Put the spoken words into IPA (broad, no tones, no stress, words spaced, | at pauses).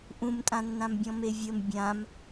ʔũmtʼãnːãmbʲɔ̃ mevʲəm bʲãm